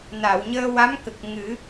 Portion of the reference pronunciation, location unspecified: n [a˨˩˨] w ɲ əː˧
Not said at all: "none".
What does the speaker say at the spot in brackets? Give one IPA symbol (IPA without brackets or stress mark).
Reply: a˨˩˨